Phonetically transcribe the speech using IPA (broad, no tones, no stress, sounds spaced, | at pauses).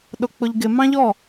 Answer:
ɗ ʊ k͡p ʊ ʎ ɡ ɪ m ɑ̃ ʎ ɔ